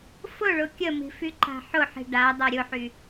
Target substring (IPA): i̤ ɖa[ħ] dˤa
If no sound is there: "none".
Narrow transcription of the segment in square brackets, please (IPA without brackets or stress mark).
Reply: none